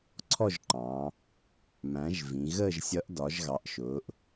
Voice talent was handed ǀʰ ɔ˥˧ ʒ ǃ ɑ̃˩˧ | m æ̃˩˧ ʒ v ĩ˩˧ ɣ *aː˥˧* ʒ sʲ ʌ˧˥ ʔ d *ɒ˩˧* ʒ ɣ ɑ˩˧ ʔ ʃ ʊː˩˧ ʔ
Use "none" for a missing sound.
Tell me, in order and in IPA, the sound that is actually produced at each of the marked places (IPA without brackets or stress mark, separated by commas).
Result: əː˥˧, ɒ˩˧